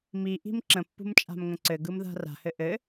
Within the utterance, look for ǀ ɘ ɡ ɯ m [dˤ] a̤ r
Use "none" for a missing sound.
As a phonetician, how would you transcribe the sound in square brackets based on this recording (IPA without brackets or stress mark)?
ð